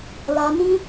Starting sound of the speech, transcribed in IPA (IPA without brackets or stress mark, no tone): l